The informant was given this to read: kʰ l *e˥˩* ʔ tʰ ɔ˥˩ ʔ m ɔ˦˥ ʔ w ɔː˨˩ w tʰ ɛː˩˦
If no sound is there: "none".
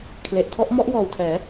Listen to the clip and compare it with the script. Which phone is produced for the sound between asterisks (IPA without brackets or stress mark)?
e˨˩